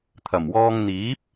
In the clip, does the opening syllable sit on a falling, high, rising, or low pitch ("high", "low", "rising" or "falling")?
low